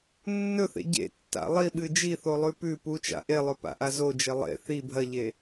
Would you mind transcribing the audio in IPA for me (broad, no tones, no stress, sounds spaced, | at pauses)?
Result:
nː ɵ θ ḛ ɟ ḛ tː a̰ lˠ i ɓ ɨ d͡ʒ i θ o lˠ ʉ p ʉ p u t͡ʃ a̰ ʔ e lˠ ɵ p a̰ ʔ a z o d͡ʒ e lˠ ḛ θ i bʱ ɐ ʎ e